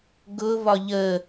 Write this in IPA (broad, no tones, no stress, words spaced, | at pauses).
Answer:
ɡʊβɒ ʎə